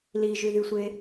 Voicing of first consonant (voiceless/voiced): voiced